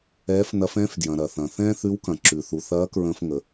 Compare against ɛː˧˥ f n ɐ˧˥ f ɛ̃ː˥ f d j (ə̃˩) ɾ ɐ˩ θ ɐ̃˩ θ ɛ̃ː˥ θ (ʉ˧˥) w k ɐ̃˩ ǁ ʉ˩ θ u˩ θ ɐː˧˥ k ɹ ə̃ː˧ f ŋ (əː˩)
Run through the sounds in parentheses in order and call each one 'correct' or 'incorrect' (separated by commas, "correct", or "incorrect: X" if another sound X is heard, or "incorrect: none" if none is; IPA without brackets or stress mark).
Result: incorrect: ɐ̃˩, correct, incorrect: ə˩